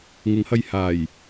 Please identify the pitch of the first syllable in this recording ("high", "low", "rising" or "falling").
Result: rising